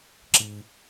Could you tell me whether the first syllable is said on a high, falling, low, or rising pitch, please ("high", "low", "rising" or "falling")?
low